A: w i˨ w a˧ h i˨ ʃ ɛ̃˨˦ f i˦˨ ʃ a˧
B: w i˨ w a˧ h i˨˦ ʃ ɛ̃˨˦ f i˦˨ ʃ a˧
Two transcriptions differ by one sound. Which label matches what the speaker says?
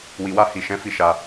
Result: A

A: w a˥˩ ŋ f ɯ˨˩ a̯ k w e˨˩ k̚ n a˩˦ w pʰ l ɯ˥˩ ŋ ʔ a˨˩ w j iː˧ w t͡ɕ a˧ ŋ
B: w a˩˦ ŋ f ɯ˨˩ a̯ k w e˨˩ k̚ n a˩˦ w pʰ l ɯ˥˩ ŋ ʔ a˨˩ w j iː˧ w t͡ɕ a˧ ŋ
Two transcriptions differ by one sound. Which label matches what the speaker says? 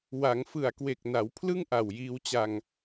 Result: B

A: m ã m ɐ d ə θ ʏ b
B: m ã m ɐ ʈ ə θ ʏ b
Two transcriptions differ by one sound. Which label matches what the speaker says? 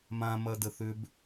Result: A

